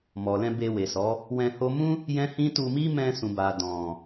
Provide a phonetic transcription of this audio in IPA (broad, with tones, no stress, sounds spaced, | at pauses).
m ɔ˨ l ɛ̃˧ b e˧ w e˨ s ɔ˨˦ | w ɛ̃˧ h o˦ m ũ˦ | j ɛ̃˦ h ĩ˦ t u˧ m i˦ m ɛ̃˧ s ũ˨ b a˨ d ɔ̃˨